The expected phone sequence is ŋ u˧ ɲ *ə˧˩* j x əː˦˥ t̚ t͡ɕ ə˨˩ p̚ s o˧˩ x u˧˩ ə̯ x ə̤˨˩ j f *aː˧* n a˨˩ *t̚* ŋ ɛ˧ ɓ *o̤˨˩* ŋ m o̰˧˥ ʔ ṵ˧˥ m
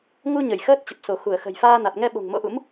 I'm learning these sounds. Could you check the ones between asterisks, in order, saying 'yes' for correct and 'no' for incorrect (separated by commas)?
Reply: yes, yes, yes, yes